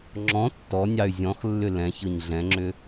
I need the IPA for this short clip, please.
ŋ͡ǁ ɔ̃ tː ɔ nʲ ɑ y̯ zʲ ɔ̃ x lː ʏ l ɛ̃ ç ɤ ɲ ɮ ɛ̃ ŋ͡ǁ ʏ

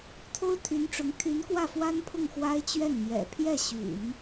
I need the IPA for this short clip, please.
t̪ʰ o˥ ʊ̯ t̪ʰ y˧˥ n ʈ͡ʂ ʊ˧˥ ŋ t̪ʰ y˧˥ n k w ä˥˩ f w a˥ n pʰ ʊ˥˩ ŋ x w a˥ ɪ̯ t͡ɕ ɥ ɛ˥˩ n m j ɛ̰˨˩ pʰ j ɛ˥˩ ɕ y̰˨˩˦ n

